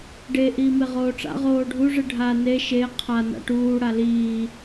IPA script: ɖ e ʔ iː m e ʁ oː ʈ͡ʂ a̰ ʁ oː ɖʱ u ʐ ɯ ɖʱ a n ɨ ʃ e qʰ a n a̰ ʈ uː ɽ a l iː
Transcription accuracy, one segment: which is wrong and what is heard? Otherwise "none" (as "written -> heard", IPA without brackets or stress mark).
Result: ɨ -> e